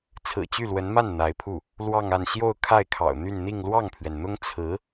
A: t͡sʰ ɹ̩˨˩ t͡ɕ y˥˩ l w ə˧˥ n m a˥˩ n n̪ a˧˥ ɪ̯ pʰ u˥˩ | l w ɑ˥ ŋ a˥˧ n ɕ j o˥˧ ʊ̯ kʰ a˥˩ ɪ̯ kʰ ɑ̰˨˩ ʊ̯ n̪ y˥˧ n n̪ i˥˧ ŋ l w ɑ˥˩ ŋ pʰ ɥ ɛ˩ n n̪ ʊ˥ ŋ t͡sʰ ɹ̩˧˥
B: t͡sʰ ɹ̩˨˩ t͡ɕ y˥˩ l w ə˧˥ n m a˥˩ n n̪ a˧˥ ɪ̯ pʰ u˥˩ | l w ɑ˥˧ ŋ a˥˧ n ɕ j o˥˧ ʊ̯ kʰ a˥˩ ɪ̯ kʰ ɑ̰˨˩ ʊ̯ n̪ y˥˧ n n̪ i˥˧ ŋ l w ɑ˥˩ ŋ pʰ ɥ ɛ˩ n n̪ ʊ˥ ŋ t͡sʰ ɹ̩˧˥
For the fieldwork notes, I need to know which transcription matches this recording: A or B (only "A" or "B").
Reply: B